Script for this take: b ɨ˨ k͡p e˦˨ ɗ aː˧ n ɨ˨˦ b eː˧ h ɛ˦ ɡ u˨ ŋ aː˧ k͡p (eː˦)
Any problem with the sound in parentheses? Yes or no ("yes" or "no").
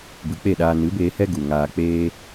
no